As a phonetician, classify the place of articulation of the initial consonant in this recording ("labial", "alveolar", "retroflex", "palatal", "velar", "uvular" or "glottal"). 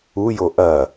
palatal